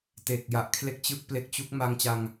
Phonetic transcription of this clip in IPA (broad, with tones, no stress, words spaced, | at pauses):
te˨˩k̚ja˨˩ʔkʰle˦˥k̚t͡ɕɯ˦˥k̚ ple˦˥k̚ t͡ɕu˦˥k̚ ma˧ŋt͡ɕa˧ŋ